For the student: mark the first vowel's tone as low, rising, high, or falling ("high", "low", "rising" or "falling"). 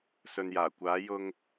low